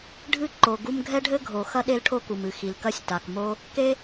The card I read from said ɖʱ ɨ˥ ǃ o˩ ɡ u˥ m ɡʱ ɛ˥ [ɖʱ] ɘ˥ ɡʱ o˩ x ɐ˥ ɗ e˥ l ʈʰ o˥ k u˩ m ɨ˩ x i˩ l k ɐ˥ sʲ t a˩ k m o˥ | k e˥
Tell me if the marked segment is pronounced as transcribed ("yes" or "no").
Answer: yes